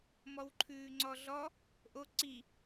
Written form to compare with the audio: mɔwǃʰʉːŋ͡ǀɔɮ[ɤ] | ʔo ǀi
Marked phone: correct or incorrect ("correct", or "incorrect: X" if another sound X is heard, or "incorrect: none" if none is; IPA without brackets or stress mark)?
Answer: incorrect: ɔ